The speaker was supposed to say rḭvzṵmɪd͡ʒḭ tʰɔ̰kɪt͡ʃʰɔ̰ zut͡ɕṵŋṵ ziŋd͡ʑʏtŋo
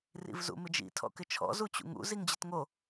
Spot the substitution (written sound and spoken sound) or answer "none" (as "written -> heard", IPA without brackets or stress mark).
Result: ʏ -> ɪ